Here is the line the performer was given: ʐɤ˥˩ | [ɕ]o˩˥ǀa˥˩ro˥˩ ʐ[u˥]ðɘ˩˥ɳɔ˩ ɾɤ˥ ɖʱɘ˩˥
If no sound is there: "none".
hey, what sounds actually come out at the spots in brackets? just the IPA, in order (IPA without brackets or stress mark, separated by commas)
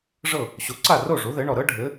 ɕ, u˩˥